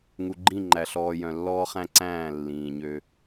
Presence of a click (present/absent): present